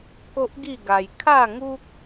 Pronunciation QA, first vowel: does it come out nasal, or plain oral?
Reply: oral